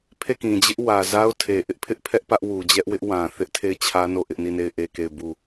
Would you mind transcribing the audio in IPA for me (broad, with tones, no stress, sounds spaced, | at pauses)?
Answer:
pʰ e˦˨ k ĩ˨ d͡ʑ ɪ˦ ʔ w ä˨ z a˦ ʊ̯ tʰ e˨ ʔ ɪ˦ ʔ pʰ ɪ˦ ʔ pʰ ɛ˦ ʔ p ä˦ ʔ w u˨ d͡ʑ ɛ˦ ʔ w ɪ˦ ʔ w ã˨ θ ɪ˦ ʔ tʰ e˦˨ ɪ̯ t͡ɕʰ ä˦ n o˦˨ ʔ ɪ˦ ʔ n i˦˨ n e˦˨ ɪ̯ ʔ e˦˨ k e˦˨ ɪ̯ b u˦˨